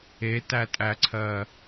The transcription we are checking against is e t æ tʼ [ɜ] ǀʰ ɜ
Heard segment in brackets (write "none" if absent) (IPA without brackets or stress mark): æ